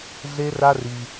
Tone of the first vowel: high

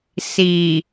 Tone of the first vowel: low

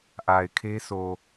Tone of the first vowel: low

